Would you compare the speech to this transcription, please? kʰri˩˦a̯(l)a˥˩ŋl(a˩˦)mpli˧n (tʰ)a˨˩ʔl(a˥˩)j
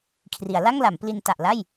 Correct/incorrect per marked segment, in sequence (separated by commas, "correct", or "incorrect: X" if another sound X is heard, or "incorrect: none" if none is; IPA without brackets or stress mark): correct, correct, incorrect: t, correct